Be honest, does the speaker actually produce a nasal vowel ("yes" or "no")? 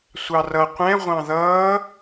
yes